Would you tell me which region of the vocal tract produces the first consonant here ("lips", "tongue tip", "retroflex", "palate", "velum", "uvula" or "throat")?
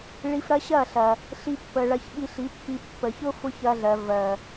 retroflex